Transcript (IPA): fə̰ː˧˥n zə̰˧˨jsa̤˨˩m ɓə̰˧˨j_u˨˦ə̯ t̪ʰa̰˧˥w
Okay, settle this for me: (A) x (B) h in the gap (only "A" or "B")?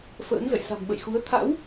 A